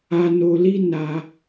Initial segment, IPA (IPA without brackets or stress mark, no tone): a